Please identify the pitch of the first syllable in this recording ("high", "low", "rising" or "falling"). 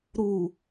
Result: low